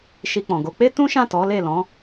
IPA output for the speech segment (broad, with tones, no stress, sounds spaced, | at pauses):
ʃ i˧ k͡p ɔ̃˨ ɡ o˨˦ k͡p e˦ t ũ˦ ʃ ã˦˨ t ɔ˨˦ l e˦˨ l ɔ̃˨˦